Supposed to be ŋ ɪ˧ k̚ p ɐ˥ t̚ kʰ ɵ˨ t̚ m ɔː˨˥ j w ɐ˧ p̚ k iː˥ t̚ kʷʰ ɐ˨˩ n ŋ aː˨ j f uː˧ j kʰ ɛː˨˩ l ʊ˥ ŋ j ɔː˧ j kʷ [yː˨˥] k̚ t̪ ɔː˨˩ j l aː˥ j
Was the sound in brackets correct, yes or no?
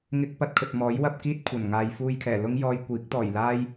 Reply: no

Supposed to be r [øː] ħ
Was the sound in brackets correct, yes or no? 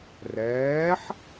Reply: no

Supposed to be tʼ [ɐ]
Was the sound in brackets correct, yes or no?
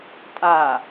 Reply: no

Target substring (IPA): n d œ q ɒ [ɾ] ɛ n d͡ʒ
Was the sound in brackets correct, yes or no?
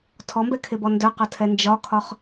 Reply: no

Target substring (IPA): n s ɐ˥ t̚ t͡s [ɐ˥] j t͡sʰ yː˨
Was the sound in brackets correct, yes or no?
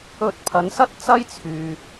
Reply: yes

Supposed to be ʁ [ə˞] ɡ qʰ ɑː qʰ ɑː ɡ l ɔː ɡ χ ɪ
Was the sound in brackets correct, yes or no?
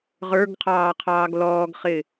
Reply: yes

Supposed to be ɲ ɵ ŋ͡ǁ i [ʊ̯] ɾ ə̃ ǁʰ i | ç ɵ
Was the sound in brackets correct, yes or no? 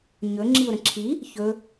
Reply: yes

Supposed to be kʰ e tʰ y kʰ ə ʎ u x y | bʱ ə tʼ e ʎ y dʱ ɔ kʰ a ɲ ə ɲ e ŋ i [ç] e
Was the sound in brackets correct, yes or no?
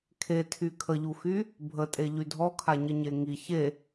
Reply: yes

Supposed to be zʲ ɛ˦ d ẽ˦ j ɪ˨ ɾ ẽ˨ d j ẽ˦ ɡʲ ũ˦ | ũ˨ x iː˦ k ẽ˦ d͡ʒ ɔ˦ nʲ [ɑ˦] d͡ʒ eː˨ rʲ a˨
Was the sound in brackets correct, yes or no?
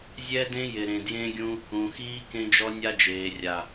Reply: no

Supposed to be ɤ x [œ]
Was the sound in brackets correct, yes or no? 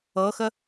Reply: no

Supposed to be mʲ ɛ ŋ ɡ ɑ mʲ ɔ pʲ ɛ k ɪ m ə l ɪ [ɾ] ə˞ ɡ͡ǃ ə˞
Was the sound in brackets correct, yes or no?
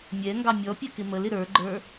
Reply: yes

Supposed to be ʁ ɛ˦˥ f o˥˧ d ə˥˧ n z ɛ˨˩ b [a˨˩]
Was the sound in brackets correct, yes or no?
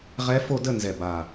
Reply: yes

